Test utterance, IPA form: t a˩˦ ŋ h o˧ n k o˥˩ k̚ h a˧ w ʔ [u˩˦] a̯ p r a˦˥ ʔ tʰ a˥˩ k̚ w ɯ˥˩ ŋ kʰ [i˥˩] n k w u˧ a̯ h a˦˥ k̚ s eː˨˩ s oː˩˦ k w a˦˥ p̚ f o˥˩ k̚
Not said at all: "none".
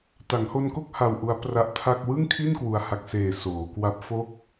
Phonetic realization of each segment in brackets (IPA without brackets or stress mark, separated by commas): u˦˥, i˥˩